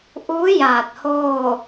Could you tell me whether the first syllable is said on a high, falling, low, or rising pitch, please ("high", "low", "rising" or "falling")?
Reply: rising